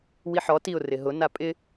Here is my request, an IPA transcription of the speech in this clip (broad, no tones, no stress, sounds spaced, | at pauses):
w i ħ ɔ t i ʊ̯ r ɪ ɦ ʊ n a pʼ ɪ